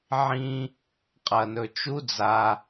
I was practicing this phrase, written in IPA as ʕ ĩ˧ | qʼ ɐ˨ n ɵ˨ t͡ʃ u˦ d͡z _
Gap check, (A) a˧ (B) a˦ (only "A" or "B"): A